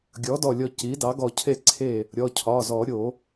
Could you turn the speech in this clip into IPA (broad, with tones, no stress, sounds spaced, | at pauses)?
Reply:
ɡʲ ɔ˩˥ d ɔ˧˩ lʲ ɔ˧˩ c i˩˥ d ɑ˩˥ ɡ ɔ˧˩ cʰ e˥˩ ǀʰ e˥˩ | ɾʲ ɔ˩˧˩ cʰ ɒ˩˧˩ z ɔ˨˩˦ ɾʲ o˨˩˦